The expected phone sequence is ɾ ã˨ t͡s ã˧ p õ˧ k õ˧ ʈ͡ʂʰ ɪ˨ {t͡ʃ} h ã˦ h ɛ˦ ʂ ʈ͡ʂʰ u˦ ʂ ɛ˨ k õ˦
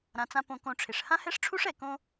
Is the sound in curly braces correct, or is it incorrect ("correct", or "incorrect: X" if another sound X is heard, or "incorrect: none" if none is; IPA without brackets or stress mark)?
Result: incorrect: ʂ